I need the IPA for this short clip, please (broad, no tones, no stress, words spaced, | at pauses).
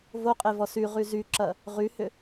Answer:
voqʼevɔs yʁy zyǁɐ | ʁyhʏ